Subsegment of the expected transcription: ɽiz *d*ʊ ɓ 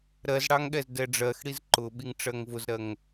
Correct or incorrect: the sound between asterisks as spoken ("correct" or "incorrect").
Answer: incorrect